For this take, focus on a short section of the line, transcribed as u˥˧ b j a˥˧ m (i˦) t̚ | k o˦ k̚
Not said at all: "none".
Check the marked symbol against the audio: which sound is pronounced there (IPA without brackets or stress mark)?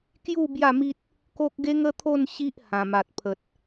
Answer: i˦